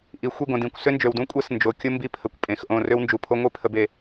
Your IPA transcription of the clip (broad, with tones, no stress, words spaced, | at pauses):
ʔi˨xʷi˦˨ɡõ˨d ĩ˨kʷ sʏ˦nd͡ʒø˨wdũ˦ kʷʼɛ˦s nd͡ʒo˨ kʲʊ˦ mbi˦pʰə˨kʷpʼẽ˨xʔõ˦˨ rø˦wnd͡ʒu˨pʰo˦ ŋʷi˦ pʰə˦be˦